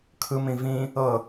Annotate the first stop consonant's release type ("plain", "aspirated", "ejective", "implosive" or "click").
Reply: aspirated